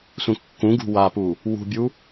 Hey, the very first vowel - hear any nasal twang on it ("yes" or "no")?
yes